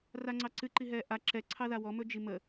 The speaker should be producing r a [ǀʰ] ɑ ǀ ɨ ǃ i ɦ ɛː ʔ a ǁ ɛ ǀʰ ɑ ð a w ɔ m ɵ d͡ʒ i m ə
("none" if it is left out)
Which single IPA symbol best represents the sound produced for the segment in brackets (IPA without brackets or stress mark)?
ŋ͡ǀ